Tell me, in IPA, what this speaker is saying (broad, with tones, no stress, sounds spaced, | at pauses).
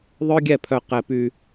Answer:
ðˤ œ˦ ɡʲ ɛ˦˨ pʰ œ˧ q ɛ˧ p y˧